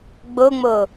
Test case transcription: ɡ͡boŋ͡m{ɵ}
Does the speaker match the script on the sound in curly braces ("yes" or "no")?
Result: no